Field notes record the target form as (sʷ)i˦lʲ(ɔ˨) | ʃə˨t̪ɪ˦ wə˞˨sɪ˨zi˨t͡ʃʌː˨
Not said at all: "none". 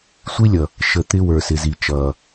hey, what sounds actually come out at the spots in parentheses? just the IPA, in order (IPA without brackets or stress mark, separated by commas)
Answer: sʷ, ʌ˨